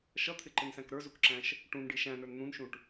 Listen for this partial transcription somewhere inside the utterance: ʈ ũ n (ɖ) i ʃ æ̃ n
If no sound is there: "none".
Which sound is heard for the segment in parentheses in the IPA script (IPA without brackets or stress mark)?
ɖ